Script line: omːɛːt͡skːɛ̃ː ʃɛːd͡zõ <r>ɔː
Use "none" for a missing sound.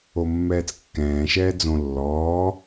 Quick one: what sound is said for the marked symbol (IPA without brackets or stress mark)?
lː